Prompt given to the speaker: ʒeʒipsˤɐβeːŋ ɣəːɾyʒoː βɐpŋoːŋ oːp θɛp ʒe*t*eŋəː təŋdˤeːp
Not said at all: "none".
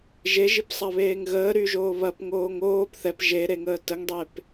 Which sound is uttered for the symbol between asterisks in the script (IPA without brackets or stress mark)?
ɾ